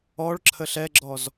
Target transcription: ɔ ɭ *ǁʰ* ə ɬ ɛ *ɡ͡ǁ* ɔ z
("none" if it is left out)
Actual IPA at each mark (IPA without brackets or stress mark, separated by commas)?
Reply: ǁʰ, ɡ͡ǁ